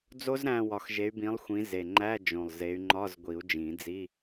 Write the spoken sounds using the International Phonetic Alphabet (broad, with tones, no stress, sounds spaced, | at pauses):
d͡z o˦˥ z ɾ æ̃˦˨ w ɒ˨˩˦ x ʒ e˨˦ y̯ b ĩ˨˦ lˠ xʷ ĩ˨˦ z e˨˩ ŋ͡ǃ æ˧˥˧ d͡ʒ õ˨˩ lˠ z e˨˦ y̯ ŋ͡ǃ ɒ˧˥˧ z ɡʷ i˨˩˦ u̯ d͡ʒ ĩ˨˩˦ d͡z i˧˥˧